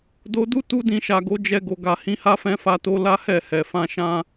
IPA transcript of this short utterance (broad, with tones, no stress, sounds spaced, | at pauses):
d o˧ d u˦ t u˦ d ĩ˧ ʃ a˨ ɡ o˨˦ d͡ʒ ɛ˧ ɡ o˨ ɡ a˨ h ĩ˧ h a˦ f ɛ̃˧ f a˧ t o˧ l a˦ h ɛ˦˨ h ɛ˨ f ã˧ ʃ ã˦